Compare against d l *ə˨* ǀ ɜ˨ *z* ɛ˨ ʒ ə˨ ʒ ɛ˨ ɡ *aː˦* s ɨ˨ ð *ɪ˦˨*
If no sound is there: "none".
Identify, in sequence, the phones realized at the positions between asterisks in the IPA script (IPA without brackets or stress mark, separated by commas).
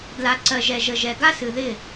a˨, ʒ, a˦, ɪ˦˨